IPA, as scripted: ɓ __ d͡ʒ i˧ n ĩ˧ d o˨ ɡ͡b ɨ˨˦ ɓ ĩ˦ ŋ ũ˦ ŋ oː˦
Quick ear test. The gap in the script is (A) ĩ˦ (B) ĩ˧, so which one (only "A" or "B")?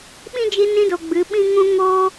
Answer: A